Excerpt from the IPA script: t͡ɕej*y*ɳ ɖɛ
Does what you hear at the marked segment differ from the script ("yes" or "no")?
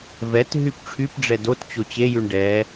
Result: no